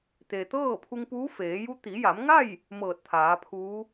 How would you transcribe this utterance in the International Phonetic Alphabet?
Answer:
t̪ e˩ t̪ ɤː˥˨ pʰ u˧ ŋ p uː˧˥ f eː˩˧ j u˧˥ t̪ i˩˧ j a˩˧ m ŋ a˥˨ j | m ɤː˧˩ t̚ t̪ʰ aː˩˧ pʰ uː˧˥

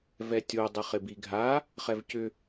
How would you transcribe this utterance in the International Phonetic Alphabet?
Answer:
v ɛ tʲ o dˤ ɪ χ ɪ b i ɡʱ a | χ ɛ v c ʏ

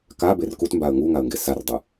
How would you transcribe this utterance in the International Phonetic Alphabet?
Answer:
k a b e r k u t m b a ə̯ ŋ u ŋ a ə̯ ŋ ɡ e s a r dˤ ɯ

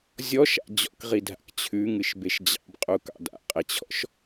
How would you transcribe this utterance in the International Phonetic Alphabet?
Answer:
zʲ ɔ ʃ a̰ d͡ʑ ɔ̰ k ʁ i dʱ a̰ k t͡ɕʰ ʉ ŋ ɨ ʃ b e ʃ d͡ʑ ɑ̰ b qʼ u k ɑ̰ d a̰ qʼ e t͡ɕʰ ɔ̰ ʃ

